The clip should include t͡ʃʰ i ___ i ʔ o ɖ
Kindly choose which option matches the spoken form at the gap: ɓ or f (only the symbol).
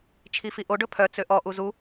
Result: f